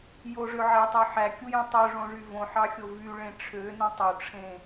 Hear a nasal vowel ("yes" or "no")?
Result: yes